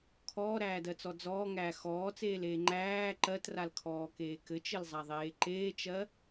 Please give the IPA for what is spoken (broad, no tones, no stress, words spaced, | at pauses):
kʰɔːɾæːdɜt͡sɔ d͡zɔːŋæː xɔːt͡seːleː ŋ͡ǃæː ǃɜtralkʰɔːkeː kɘt͡ʃɘlzˤaðˤeː ǃeːt͡ʃɜ